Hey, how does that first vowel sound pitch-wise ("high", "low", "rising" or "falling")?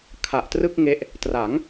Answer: low